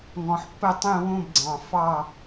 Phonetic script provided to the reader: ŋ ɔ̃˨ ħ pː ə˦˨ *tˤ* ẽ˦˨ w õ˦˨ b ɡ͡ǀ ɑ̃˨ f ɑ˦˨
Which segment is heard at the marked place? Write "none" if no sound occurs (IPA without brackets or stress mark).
tˤ